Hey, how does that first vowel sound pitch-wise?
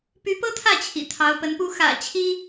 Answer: rising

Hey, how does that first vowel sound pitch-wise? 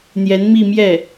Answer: rising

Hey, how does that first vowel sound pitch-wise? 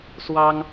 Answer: high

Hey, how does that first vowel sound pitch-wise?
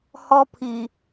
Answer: high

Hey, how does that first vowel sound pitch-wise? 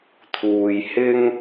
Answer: low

